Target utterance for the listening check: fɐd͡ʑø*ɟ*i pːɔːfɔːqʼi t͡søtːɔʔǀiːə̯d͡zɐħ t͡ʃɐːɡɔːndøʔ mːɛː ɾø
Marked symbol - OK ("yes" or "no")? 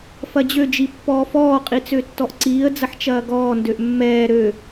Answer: no